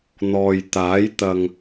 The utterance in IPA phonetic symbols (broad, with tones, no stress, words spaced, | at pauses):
n̪ɔː˨j t̪aː˨˥j t̪ɐ˨ŋ